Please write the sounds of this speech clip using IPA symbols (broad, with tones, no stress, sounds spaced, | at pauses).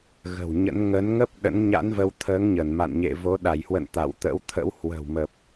ɣ ə̤˨˩ w ɲ ə̰˧˥ n ŋ ə˨˦ n ŋ ə˦˥ p̚ ɗ ə̰˧˥ n ɲ a̰˧˥ n v ə˧ w t̪ʰ əː˨˦ ŋ ɲ ə˧˩ n m a̰˧˨ n ɲ ḛ˧˨ v o˨˦ ɗ a˧˩ j h w ə̰˧˨ n t̪ a̰˧˨ w t̪ ə̰˧˥ w t̪ʰ ə̰˧˥ w h w ə̤˨˩ w m ə˨˩ p̚